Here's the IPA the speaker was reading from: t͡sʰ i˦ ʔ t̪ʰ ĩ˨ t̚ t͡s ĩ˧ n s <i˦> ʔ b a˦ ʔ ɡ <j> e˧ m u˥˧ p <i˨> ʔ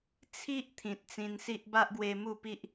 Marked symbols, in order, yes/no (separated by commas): yes, no, no